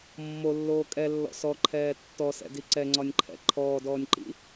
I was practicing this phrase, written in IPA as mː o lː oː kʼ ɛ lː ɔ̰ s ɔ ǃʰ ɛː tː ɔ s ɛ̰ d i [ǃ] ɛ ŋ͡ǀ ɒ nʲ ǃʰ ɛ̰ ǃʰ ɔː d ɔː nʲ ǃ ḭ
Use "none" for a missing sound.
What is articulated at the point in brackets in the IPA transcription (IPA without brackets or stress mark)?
ǀ